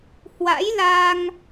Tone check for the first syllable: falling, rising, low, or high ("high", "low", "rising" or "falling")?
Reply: rising